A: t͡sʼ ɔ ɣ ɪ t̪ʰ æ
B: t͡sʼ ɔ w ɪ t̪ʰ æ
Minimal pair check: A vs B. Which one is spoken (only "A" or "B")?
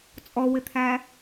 B